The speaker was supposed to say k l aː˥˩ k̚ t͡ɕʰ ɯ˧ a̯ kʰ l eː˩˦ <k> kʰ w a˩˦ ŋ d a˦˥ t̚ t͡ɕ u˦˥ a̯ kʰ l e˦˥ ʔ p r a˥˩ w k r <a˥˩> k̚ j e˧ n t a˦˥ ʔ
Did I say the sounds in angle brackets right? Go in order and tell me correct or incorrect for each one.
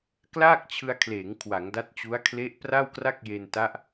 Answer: incorrect: ŋ, correct

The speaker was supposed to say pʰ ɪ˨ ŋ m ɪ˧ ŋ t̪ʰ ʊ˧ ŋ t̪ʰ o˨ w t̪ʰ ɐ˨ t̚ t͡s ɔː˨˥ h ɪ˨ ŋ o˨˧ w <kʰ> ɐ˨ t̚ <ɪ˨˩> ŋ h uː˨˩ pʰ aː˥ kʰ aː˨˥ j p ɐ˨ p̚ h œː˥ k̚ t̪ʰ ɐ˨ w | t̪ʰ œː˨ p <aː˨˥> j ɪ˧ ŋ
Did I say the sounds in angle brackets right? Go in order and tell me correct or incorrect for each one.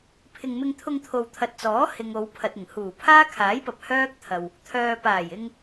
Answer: incorrect: pʰ, correct, incorrect: aː˨˩

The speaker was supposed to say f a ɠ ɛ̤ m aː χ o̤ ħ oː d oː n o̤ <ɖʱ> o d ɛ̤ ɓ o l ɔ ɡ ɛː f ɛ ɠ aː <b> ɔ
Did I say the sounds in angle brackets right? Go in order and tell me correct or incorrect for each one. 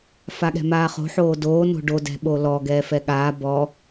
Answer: incorrect: ɖ, correct

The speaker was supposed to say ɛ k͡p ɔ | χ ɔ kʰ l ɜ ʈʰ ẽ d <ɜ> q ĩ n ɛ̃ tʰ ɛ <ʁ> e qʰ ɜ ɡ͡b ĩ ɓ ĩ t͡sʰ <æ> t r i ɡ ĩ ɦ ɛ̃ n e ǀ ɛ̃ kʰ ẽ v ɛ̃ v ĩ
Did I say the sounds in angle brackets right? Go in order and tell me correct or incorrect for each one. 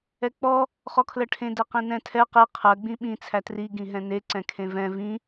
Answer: incorrect: ɛ, incorrect: q, correct

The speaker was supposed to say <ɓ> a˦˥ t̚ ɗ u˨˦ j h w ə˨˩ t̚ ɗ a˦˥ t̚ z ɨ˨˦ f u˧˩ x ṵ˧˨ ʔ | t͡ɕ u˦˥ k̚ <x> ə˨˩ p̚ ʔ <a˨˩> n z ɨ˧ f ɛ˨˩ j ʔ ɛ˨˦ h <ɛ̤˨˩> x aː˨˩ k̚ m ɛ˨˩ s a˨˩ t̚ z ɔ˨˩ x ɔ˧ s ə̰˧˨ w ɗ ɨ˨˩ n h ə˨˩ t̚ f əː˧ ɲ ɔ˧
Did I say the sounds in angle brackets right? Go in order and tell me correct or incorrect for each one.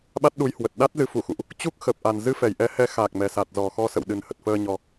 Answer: correct, correct, correct, incorrect: ɛ˨˦

